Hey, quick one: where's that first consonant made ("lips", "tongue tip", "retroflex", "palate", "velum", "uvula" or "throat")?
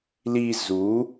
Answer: tongue tip